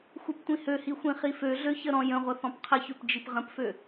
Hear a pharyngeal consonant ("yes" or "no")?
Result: no